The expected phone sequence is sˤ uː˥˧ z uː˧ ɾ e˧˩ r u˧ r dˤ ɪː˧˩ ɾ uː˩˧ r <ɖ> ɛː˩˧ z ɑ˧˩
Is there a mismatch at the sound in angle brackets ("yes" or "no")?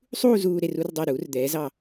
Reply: yes